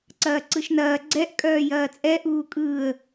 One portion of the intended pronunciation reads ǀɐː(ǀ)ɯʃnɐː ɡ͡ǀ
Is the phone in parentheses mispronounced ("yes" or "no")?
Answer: no